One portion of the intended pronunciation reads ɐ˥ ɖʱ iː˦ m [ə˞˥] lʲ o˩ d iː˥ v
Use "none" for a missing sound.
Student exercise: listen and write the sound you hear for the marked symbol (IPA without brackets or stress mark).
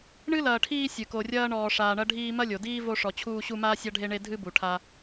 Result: ɐ˥